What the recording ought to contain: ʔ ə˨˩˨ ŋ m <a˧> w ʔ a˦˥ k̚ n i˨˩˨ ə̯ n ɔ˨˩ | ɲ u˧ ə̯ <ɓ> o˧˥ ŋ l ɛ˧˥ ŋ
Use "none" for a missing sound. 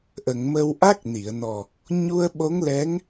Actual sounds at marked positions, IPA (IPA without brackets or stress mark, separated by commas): ə˧, ɓ